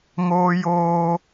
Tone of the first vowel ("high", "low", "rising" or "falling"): high